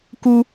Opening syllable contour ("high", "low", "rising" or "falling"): high